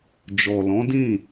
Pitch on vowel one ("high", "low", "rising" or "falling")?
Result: low